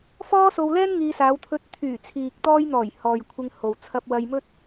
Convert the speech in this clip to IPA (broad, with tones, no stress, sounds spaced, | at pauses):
f ɔː˥ s o˧ w l ɛː˥ n ŋ iː˧ s aː˨˧ w t̪ʰ ɵ˧ t̚ t̪ʰ yː˨˩ t͡sʰ iː˨ k̚ t̪ ɔː˧ j n̪ ɔː˨˩ j h ɔː˨ j kʷʰ ɪ˧ ŋ h o˨ w t͡sʰ ɐ˧ p̚ w ɐ˧ j m ɵ˥ t̚